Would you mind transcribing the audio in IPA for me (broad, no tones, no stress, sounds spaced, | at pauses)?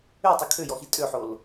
ø tˤ u kʰ ø j ɔ x i tʼ ø ħ o l